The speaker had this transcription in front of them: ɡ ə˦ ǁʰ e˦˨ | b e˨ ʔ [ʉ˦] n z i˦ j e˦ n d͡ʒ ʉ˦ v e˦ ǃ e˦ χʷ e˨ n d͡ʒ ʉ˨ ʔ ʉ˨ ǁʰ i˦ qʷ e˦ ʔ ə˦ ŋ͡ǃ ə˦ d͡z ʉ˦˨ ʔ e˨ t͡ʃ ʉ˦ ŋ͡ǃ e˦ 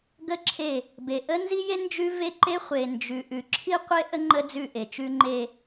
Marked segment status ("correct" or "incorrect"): incorrect